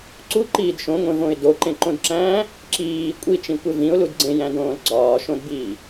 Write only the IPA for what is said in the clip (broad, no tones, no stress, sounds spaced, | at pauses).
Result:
ǀ u ǃ iː d ʃ õ ŋʷ ẽ v õ ɪ̯ d o ǃ ẽ ǃ õ d ǁ æ̃ː | ǁ iː kʷʼ i t͡ʃ ĩ kʷ e v ĩ ʊ̯ l u d ɡ͡ǀ ẽ j æ̃ d õː l ɡ͡ǀ ɒː ʃ õ d b iː